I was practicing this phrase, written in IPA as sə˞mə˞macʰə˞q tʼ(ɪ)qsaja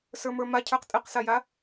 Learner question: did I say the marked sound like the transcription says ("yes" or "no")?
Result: yes